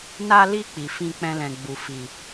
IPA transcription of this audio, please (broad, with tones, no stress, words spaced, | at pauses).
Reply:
na˧li˧ k͡pi˨fĩ˧k͡pɛ̃˧lɛ̃˨ ɡ͡bu˨fi˨